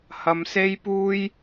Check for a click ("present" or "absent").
absent